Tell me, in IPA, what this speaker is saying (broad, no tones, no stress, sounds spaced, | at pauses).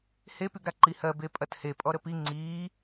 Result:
h e p y ɡ ɾ a ǃ i h ɜ b e pʼ ɐ t h e pʼ ɔ ɾ ə p i ŋ͡ǀ iː